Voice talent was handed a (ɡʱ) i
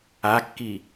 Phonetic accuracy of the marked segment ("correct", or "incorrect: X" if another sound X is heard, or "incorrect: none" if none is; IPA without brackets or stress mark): incorrect: kː